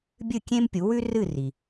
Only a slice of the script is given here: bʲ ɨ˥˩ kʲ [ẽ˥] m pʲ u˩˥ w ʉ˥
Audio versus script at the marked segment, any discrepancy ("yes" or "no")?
no